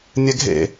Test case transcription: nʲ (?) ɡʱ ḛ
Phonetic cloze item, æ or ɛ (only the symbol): ɛ